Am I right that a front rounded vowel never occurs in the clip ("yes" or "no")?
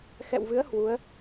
yes